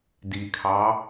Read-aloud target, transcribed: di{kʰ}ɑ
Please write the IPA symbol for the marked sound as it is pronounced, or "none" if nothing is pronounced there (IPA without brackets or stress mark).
kʰ